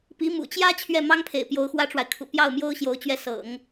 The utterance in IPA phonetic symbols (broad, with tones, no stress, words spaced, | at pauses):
pi˧˥ mṵ˨˩t͡ɕjä˥ t͡ɕʰɥɛ˥˩mɑ˥ŋpʰḛ˨˩ɪ̯ pjo˧˥ʊ̯xwä˥ʈ͡ʂwa˨ɪ̯ kʰṵ˨˩pjɑ˥˩ʊ̯mjo˥ʊ̯ ɕjo˧˥ʊ̯t͡ɕɥɛ˥˩ sɤ̰˨˩˦ŋ